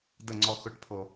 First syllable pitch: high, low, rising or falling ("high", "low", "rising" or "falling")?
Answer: falling